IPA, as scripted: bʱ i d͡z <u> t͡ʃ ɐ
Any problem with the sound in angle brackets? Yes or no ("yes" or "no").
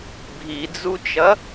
no